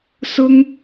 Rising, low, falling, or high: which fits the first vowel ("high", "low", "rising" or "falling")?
high